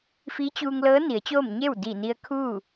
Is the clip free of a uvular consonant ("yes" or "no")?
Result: yes